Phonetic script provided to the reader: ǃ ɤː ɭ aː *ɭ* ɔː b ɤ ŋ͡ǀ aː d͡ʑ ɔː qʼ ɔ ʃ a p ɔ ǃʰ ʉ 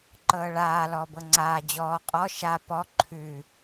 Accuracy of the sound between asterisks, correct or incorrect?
incorrect